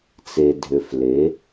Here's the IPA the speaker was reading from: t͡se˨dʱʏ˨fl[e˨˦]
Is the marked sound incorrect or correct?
correct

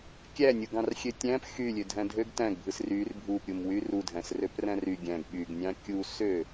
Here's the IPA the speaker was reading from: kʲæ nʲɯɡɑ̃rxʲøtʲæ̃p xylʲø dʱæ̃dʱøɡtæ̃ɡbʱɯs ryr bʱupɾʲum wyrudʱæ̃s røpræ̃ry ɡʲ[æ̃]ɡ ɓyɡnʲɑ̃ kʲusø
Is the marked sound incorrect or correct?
correct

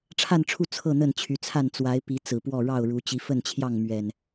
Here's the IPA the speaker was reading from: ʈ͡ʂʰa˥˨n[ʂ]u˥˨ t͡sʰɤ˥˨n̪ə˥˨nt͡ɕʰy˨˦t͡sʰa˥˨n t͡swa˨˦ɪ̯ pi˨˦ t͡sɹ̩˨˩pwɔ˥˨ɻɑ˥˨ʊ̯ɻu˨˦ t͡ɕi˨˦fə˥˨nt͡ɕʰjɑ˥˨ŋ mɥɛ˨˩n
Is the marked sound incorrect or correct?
incorrect: ʈ͡ʂʰ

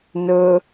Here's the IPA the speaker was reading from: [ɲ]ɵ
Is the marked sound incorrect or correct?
incorrect: n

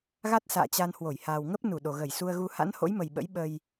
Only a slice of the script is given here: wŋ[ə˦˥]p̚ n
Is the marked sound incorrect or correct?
correct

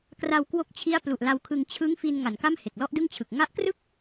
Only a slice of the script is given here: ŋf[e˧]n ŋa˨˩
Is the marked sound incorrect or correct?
incorrect: i˧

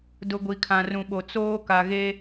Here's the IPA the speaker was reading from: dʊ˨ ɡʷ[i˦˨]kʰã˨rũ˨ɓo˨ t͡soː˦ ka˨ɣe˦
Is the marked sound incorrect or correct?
incorrect: i˨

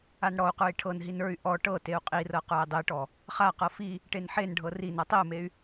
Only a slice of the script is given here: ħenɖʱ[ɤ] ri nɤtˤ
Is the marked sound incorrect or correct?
correct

